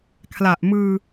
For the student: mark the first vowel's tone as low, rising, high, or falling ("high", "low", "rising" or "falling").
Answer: low